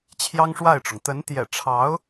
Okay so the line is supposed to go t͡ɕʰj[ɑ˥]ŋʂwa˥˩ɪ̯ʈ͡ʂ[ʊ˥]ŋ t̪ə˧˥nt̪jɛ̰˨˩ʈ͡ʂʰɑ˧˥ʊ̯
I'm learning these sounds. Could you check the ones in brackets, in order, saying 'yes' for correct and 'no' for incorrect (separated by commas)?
yes, no